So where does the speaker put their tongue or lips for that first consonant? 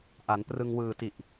throat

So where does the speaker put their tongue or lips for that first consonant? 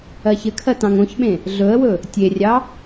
palate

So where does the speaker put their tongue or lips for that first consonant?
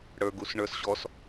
retroflex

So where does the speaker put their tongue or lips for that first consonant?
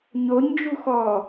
palate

